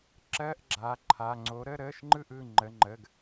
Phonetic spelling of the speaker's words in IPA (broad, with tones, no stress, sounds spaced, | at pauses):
ǁ ɜ˧˥˧ ʔ ɡ͡ǁ a˩˧˩ ǃʰ a˩˧˩ ŋ͡ǀ o˩˥ ɾ ə˧˥˧ ɾ əː˧˥˧ ʃ ŋ͡ǃ ɯ˥˨ ʔ ɯ˩˧˩ ŋ͡ǃ ə˩˧˩ ŋ͡ǃ ə˩˧˩ ɡ